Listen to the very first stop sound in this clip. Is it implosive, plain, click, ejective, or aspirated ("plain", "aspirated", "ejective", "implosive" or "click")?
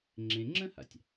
click